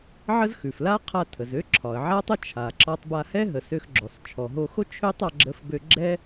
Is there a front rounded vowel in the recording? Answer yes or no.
yes